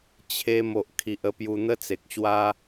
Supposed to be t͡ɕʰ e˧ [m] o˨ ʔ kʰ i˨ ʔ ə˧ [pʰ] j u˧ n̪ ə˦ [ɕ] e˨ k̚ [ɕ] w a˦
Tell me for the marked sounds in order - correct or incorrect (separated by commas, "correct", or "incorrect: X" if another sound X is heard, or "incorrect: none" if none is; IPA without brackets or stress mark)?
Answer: correct, incorrect: p, incorrect: t͡s, correct